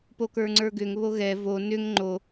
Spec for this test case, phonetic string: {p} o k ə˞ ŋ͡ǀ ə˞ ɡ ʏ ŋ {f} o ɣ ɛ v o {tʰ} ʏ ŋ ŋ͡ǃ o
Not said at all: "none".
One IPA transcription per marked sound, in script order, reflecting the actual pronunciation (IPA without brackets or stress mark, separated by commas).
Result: p, β, n